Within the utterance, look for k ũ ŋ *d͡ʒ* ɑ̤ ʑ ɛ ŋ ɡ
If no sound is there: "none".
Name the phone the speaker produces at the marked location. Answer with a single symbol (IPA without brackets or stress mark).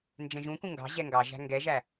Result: ɡ